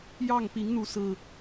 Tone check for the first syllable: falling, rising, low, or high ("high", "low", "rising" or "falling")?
falling